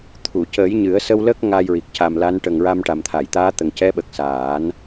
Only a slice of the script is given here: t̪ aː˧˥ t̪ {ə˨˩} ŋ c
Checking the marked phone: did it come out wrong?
no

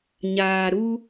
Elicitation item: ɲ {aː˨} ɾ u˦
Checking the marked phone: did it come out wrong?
no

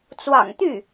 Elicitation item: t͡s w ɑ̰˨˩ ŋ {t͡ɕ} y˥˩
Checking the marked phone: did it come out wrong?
yes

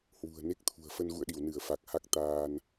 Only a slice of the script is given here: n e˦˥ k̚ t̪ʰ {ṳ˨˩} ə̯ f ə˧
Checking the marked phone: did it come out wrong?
no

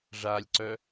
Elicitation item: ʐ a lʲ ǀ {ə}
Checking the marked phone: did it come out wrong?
yes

